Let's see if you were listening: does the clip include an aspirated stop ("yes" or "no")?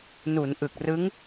no